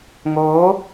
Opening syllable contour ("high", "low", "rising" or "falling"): rising